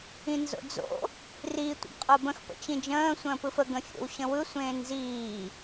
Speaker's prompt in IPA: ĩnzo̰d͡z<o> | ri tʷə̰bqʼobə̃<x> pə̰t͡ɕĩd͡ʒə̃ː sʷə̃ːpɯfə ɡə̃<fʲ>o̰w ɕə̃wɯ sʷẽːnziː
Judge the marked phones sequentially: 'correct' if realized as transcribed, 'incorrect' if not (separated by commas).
incorrect, correct, correct